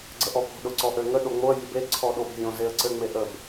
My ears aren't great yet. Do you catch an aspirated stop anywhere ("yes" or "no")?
yes